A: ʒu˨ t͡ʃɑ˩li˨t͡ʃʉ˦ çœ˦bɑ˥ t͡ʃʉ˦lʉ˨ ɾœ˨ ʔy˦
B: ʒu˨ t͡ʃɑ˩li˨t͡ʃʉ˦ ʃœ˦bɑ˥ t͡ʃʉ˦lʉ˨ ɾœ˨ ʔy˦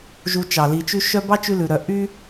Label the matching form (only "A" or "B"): B